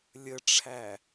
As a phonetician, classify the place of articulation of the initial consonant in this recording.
alveolar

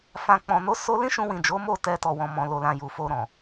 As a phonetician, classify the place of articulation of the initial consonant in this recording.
labial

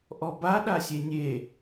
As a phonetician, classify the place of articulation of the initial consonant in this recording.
glottal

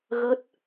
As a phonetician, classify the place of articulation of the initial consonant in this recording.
velar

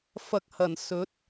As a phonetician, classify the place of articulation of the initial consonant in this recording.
labial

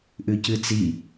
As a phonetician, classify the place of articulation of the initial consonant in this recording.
glottal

